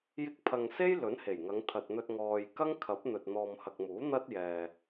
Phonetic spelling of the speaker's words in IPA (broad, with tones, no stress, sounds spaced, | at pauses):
j ɪ˧ k̚ pʰ ɐ˨ ŋ s e˥ j l ɵ˨˥ n h e˨˩ j ŋ ɐ˨˧ ŋ t̪ʰ ɐ˨ t̚ n̪ ɵ˧ t̚ ŋ ɔː˨ j k ɐ˥ ŋ kʰ ɐ˨˥ p̚ n̪ ɵ˨ t̚ n̪ ɔː˨ m h ɐ˨ k̚ m uː˨˥ n̪ ɐ˥ t̚ j ɛː˨